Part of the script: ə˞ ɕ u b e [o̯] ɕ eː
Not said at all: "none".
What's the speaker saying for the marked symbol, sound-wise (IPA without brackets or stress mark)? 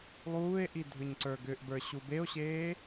o̯